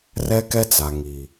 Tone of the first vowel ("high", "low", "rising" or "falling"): high